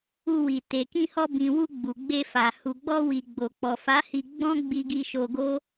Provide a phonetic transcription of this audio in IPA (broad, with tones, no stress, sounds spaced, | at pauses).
u˧ w i˨ t e˨ k ĩ˧ h ɔ˧ b ĩ˨ w u˧ ɡ͡b u˨ ɡ͡b e˧ f a˨ h u˨ ɡ͡b ɔ˧ w i˨ ɡ͡b o˨ k͡p ɔ˨ f a˨˦ h i˧ ɡ͡b ɔ̃˦ ɡ͡b i˧ ɡ i˧ ʃ o˧ ɡ o˦